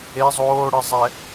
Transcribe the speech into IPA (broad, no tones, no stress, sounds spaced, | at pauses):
e zˤ oː ɽ ɨ zˤ ɛ